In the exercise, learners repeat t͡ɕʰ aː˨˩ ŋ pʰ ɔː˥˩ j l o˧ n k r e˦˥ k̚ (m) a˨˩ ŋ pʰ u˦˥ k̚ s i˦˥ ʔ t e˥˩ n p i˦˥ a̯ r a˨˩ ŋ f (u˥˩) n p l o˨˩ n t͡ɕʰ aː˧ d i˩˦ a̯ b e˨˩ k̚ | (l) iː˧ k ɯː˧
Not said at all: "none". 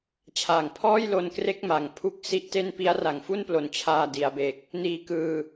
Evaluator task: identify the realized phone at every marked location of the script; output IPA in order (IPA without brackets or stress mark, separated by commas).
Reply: m, u˥˩, n